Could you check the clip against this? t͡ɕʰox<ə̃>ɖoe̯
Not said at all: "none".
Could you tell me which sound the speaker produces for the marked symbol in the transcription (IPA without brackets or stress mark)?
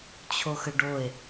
ə